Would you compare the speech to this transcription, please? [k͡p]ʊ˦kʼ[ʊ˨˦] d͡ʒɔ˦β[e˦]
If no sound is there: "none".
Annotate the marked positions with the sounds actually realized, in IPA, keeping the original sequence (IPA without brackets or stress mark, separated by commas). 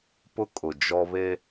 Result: p, ʊ˨, e˦